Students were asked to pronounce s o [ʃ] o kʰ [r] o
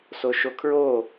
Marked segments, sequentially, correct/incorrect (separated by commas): correct, incorrect